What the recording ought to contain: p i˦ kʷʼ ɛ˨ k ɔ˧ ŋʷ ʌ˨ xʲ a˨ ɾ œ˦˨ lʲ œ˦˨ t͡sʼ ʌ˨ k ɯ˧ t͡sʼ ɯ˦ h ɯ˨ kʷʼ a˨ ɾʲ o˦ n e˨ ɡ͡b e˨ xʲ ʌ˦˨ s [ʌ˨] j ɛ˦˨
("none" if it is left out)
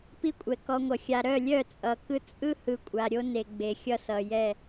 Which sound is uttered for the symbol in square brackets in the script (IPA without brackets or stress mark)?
ʌ˨